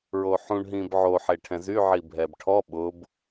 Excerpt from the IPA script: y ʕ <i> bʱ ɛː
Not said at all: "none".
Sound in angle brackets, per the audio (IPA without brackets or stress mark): i